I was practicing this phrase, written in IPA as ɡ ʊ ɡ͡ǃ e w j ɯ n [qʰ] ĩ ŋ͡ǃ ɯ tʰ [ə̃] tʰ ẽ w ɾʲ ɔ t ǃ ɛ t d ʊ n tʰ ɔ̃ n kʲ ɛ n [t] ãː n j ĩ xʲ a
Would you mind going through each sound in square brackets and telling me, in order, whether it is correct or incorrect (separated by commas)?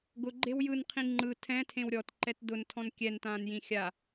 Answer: correct, incorrect, correct